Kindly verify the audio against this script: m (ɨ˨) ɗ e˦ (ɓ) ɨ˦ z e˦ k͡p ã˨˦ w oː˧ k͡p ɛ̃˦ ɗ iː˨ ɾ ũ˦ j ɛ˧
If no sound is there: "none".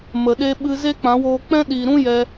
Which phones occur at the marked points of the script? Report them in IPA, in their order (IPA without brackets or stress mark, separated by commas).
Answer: ə˨, ɓ